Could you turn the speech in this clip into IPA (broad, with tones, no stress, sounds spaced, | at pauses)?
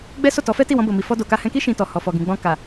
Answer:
ɡ͡b ɛ˦ s o˦˨ t ɔ˨˦ f ɛ˦ t i˦˨ w ɔ̃˧ b o˨ m i˨ f ɔ˧ d o˨ k a˧ h ɛ̃˧ k i˦ ʃ ĩ˧ t ɔ˨ h ɔ˨ f ɔ˨ ɡ ĩ˨ ɡ͡b ɔ̃˧ k a˨